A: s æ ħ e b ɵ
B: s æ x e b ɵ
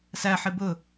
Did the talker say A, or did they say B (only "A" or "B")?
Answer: A